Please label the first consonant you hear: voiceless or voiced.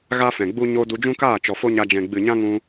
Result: voiced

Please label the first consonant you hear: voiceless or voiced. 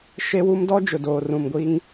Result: voiceless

